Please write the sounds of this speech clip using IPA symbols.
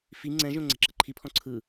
f i ŋ͡ǀ ɛ̃ ʒ õ ŋ͡ǀ ɛ̤ ǁ ɤ ǃʰ i pʰ ɔ̃ ǀʰ ɯ

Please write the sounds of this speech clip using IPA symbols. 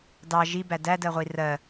d ɑ ʒ i b æ d æ d ɜ ʁʷ i r ɜ

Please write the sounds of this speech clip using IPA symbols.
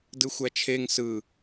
d ɯ xʷ æ t͡ʃʰ e ŋ s ɯ

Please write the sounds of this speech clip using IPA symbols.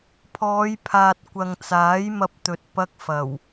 pʰ ɔː˨˧ j pʰ aː˨ t̚ kʷ ɐ˨ ŋ t͡s aː˨˥ j m ɐ˧ p̚ t̪ ɵ˨ t̚ p ɐ˧ k̚ f ɐ˨˩ w

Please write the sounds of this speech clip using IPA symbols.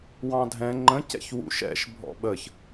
w ɑ̃ dʱ ɛ̃ ŋ͡ǃ ə̃ c ɛ̰ ç w ṵ ʃ ɛ̰ ʃ bʱ ɔ̰ ɓ ə ç

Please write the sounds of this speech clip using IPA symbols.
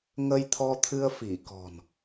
ŋ ə˧ j t̪ʰ ɔ˧ t̪ʰ ɨ˧ ə̯ f i˧˩ k ɔ̤˨˩ n

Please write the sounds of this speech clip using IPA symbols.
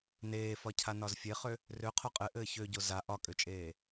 n eː f ɒ cʰ a n ɒ z fʲ e χ ø | r ø qʰ o qʼ ɘ ʔ ɘː ç ø ɟ o z a ʔ ɒ kʼ ø t͡ʃʼ eː

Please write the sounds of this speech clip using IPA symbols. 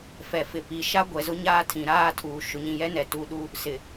f ɛ˨ f ɪ˨ p i˨ ʃ a˦ ɡʷ ɛ˨ z ʊ˦ ɲ aː˦ tʰ ĩ˨ ɾ aː˦ tʰ uː˨ ʃ ʊ˨ ɲ ĩ˨ j ɛ˦ n ɛ˨ t u˨˦ ɗ u˦ | s ɪ˨

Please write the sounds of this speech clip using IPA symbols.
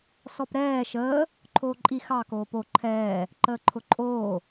s ɔ p ɾ ɛː ʃ əː | ǃʰ oː ǃʼ i x ɑ k oː p o ǃʰ ɛː | ǃ əː ǃʰ ʊ ǃʼ oː

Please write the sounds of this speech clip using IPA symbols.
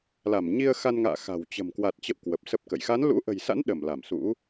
l a˧˩ m ɲ i˧ ə̯ x a˧ n ŋ a̰ː˧˨ x a̤˨˩ w t͡ɕ ə̤˨˩ m k w a˨˩ t̚ t͡ɕ ə̰˧˨ w k w ə˨˩ p̚ s ə˦˥ p̚ k ə̰˧˨ j x a˨˦ n l ṵ˧˥ ʔ ə̤˨˩ j s a̰˧˥ n ɗ ə˧˩ m l a˧˩ m s ṵ˧˥

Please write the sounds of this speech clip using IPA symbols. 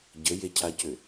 ɟ ə j e cʰ a c ʏ

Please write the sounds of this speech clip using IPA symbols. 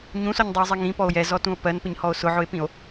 ɲ ũ s ɔ ɲ dˤ i o̯ zˤ i ŋ ĩ p ɔ o̯ j ɛ z ɔ t ũ o̯ p ɜ n p ɪ ɲ h ɔ o̯ s ʊ ʕ ʊ e̯ p ĩ o̯

